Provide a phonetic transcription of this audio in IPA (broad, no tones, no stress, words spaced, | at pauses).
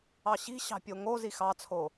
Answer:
ɑɕi̤ɕɑ̤ pʲoŋozi xɑt͡sʰo